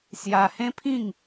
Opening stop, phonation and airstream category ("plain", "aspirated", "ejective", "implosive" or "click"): aspirated